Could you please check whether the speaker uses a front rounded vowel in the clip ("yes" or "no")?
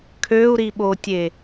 yes